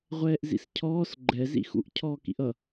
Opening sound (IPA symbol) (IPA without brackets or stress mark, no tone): ʁʷ